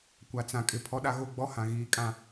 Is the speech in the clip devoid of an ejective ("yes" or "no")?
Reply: no